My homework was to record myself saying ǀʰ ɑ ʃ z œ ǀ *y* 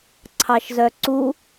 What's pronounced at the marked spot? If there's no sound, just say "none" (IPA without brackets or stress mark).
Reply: u